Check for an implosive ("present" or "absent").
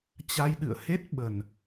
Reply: present